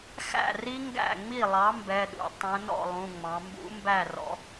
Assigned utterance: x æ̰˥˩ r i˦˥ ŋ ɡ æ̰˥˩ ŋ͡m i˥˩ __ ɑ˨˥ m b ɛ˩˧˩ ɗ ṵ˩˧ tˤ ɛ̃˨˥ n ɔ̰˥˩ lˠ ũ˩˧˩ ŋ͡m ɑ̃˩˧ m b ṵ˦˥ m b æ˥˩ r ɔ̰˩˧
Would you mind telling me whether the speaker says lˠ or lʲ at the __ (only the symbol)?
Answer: lˠ